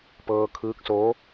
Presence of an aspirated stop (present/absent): present